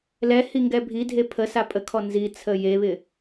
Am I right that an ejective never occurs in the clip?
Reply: no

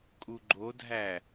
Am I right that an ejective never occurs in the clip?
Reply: no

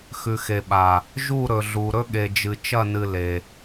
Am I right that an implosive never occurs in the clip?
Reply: no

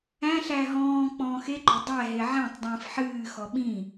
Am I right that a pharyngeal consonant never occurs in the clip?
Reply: no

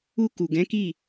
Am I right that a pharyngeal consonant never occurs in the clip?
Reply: yes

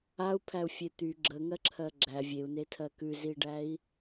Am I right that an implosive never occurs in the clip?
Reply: yes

